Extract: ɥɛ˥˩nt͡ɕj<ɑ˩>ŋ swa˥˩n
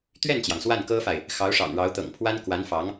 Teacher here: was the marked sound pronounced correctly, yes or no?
yes